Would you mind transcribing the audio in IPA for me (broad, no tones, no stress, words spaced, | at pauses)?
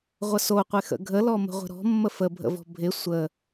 ʁʷəsoqʷe xə̰ɡʱəlɔ mə̤ʁʷə̤ɾɔ̤ mːəfəbʱə̰vɔ̤ bʱɪ sʷə